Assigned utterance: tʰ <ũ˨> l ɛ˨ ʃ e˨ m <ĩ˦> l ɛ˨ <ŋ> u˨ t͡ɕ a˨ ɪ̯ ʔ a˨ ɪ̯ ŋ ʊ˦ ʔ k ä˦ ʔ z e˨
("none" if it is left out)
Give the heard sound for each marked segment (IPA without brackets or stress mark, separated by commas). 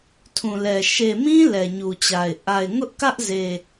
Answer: ũ˨, ĩ˦, ɲ